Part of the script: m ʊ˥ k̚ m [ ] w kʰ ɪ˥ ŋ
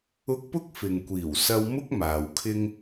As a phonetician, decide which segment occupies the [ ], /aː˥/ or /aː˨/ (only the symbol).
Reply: aː˨